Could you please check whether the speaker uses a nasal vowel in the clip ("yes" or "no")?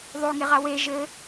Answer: no